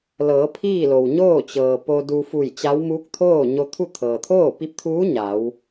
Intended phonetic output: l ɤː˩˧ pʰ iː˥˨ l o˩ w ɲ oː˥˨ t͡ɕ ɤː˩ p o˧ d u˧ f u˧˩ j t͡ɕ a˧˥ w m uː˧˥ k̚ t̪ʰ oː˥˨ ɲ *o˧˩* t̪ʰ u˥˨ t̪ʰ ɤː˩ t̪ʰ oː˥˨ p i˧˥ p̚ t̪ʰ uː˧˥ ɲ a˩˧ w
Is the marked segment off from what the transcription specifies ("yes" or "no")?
yes